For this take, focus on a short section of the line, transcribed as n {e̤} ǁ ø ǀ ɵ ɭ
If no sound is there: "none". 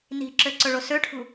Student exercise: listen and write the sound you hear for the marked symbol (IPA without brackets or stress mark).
i̤